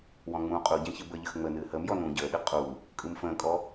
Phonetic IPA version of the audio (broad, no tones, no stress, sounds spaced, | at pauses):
w ɔ̃ ŋ͡m ũː qʼ u ɟ ɛ̃ ç ɯ b ə ʎ ə x ŋ͡m əː n ɨː h əː m j ɔ n ũː ɟ əː ɗ ɨ qʼ u | kʼ ɯ m f ə̃ː kʼ ɔ